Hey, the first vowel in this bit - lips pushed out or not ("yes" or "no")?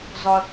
yes